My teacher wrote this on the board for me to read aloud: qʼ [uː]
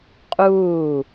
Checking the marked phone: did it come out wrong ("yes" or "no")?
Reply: no